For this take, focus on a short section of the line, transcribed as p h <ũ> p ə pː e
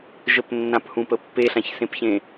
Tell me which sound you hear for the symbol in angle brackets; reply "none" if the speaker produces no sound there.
ũ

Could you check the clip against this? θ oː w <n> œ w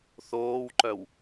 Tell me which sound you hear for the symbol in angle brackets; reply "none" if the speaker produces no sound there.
ǃ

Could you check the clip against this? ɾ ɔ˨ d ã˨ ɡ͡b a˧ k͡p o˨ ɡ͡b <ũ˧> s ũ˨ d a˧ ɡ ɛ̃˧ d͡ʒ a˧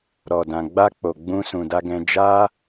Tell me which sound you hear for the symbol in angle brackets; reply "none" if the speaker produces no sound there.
ũ˧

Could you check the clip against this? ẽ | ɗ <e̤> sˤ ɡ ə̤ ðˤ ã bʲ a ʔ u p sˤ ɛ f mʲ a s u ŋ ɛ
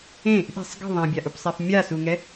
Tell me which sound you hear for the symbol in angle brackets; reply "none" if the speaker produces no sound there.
e̤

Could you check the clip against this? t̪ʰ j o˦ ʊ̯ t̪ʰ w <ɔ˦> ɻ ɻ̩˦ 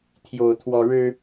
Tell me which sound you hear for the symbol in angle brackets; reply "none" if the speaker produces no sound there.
ɔ˦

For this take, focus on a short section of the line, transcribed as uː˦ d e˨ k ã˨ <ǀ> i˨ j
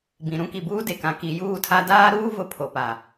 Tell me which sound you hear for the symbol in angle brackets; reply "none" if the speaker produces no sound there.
k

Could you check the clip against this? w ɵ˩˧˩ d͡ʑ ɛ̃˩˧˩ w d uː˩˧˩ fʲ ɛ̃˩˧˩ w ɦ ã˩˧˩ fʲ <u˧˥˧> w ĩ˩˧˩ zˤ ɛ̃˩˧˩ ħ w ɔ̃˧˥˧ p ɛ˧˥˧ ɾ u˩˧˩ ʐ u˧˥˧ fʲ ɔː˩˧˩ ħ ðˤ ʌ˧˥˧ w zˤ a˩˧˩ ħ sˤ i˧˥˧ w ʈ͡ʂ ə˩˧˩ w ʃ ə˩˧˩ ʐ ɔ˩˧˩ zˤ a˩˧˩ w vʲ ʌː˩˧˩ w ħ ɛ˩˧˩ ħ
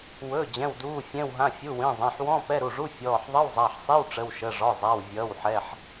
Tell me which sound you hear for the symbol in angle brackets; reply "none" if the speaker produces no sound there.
u˩˧˩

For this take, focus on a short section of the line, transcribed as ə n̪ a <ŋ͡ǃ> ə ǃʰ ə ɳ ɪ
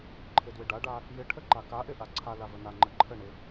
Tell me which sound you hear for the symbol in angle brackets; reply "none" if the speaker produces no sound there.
ŋ͡ǃ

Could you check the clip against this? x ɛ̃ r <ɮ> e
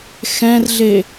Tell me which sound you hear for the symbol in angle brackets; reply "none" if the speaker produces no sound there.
ɮ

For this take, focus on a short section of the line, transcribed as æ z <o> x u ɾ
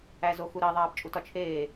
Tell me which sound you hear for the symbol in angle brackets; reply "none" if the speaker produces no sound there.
o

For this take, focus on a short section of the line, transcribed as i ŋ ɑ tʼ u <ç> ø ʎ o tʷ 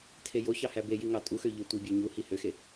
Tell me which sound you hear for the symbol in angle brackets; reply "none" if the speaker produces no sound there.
x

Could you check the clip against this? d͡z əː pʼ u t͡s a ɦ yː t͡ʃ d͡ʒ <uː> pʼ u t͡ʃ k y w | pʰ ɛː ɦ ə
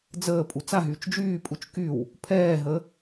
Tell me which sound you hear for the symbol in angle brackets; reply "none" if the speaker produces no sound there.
yː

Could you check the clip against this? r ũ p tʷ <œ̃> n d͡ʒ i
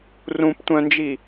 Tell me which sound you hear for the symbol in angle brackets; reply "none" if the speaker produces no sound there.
œ̃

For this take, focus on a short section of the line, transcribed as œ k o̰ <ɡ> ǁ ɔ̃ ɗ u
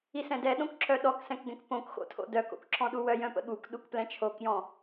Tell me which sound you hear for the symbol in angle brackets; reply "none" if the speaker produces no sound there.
k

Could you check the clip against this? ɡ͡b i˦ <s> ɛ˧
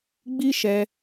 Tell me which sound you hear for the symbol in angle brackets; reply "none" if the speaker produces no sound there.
ʃ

